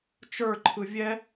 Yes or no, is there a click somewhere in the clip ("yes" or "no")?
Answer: yes